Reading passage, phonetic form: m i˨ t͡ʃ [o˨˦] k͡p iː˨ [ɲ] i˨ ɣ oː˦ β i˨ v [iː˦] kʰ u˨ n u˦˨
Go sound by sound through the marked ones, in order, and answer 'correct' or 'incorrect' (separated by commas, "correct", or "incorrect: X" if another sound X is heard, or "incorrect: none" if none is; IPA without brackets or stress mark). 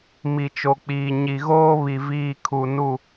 incorrect: o˨, correct, correct